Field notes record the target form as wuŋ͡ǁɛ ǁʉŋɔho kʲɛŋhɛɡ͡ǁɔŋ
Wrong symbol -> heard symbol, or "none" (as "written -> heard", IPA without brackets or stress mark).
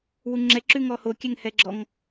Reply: none